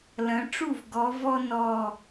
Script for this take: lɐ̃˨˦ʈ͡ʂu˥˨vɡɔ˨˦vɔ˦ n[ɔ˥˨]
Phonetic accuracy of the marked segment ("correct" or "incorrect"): correct